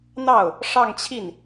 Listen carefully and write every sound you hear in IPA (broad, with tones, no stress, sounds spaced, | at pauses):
n̪ ɑ˥˩ ʊ̯ | ʂ ɑ˥˧ ŋ t͡ɕʰ i˥˩ n